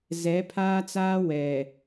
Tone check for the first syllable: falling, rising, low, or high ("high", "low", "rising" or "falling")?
rising